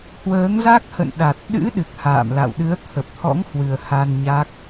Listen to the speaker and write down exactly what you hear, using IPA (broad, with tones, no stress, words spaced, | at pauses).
hwəː˨˦ŋza˦˥k̚hə̰˧˨nɗa˨˩t̚ ɗɨ̰˧˥ ɗɨ˨˩k̚ha̰ː˧˨mla̰˧˨w ɗɨ˨˦ə̯t̪ʰə˨˩p̚t̪ʰɔ̰˧˥ŋhwɨ˨˩ə̯ ha˧n ɲa˦˥k̚